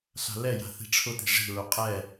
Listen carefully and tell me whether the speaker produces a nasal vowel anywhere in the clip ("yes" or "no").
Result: no